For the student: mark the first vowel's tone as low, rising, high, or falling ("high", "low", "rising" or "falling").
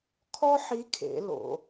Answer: high